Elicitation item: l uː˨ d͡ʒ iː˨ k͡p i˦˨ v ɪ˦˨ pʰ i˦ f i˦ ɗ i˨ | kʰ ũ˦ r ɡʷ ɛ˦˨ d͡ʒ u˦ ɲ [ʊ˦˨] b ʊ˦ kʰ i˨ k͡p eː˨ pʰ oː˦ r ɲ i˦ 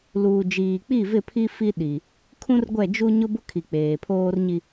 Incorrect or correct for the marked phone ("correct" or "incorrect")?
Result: incorrect